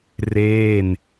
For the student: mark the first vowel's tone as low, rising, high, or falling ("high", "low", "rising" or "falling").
falling